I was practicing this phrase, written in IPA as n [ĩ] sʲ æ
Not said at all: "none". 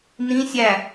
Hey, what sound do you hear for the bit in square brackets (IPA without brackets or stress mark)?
ĩ